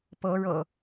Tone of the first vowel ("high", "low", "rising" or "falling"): rising